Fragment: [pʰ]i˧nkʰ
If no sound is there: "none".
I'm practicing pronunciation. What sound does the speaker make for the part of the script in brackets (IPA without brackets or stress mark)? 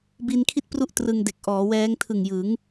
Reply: b